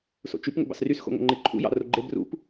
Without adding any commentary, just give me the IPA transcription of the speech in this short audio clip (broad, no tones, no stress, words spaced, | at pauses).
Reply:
so̰t͡ʃyp ŋo̰bɑ̰srys xo̰ŋo̰ŋ͡ǃeǃʰṵ jɑ̰roɡ͡ǃe brṵp